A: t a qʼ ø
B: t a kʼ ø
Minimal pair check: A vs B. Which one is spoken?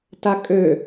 B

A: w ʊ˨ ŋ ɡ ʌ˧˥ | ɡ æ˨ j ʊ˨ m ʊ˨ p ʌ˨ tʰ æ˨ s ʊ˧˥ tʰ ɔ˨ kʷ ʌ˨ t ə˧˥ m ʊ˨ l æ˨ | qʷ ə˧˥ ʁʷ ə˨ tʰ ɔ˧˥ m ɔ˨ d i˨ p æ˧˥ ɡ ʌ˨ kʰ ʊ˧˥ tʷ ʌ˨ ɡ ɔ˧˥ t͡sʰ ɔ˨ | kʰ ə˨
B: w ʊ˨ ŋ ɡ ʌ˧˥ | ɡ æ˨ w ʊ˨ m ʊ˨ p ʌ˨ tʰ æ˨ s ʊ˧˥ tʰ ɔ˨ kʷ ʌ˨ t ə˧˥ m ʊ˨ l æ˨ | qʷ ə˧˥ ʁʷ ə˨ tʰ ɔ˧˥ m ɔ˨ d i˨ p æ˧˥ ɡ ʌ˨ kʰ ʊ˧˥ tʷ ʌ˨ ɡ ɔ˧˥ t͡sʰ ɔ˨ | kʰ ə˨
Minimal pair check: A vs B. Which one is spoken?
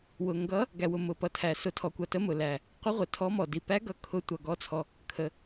B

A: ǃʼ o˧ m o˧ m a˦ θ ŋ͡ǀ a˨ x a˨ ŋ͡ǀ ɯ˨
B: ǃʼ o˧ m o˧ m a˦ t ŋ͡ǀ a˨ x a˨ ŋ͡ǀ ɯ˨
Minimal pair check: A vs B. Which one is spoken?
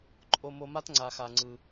B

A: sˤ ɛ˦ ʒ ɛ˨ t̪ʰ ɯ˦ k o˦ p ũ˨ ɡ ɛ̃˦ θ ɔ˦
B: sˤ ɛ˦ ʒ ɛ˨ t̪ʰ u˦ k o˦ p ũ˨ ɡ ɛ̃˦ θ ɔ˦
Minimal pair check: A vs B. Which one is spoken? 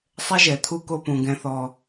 B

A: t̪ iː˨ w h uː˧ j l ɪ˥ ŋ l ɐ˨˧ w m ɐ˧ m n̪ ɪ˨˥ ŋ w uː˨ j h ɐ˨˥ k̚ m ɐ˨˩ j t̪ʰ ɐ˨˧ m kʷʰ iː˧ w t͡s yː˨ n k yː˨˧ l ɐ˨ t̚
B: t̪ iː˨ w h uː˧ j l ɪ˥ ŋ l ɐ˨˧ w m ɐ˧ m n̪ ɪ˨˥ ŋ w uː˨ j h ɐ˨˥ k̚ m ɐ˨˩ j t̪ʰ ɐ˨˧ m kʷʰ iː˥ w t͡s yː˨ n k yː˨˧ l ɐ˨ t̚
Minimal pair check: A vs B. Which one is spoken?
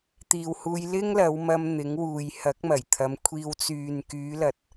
A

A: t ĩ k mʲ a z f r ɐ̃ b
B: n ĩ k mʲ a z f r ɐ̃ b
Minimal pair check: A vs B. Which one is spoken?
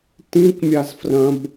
A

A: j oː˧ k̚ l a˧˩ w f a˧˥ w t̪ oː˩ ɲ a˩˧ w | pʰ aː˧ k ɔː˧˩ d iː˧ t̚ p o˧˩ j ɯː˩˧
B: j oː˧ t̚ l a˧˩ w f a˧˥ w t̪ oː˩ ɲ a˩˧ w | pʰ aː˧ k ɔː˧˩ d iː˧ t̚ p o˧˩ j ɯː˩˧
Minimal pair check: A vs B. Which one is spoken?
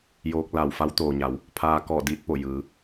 A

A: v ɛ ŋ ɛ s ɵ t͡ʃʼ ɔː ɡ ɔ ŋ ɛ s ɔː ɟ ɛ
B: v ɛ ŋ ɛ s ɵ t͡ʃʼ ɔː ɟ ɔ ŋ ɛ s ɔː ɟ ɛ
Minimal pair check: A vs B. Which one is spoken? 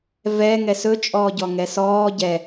B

